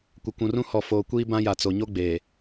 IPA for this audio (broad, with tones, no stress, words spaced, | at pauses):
kʷɪ˨kʷũ˨rũ˦ hɔ˨foː˨ kʷiː˦bã˦ ja˨ t͡so˨ɲo˦ ɡ͡beː˨